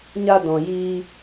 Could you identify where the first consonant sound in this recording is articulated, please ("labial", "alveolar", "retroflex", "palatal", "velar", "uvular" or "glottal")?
palatal